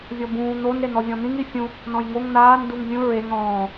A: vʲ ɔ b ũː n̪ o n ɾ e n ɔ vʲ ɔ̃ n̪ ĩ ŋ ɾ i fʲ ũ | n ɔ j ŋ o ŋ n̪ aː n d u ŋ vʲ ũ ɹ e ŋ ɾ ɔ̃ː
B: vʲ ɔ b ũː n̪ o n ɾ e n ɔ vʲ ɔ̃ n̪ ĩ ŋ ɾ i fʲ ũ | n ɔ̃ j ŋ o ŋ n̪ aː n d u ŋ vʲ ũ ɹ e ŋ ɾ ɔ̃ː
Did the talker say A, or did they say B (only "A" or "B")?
B